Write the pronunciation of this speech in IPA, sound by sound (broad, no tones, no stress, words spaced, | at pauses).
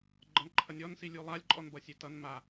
ɡ͡ǃʌnǃʰʌnʲɔn silʲulˠalʲ ǃʼɔnbʌsʲetʌn ma